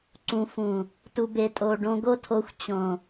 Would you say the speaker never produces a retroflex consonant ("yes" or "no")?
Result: no